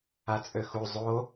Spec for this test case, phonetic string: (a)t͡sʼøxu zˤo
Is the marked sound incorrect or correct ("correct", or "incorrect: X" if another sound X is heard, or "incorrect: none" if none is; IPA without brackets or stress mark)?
correct